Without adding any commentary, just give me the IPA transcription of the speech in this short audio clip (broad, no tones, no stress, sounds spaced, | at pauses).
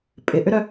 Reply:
pʼ ɪ ʔ ʏ ɾ œ